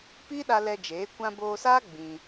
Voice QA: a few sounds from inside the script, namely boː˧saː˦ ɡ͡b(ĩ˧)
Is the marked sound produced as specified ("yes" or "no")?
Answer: yes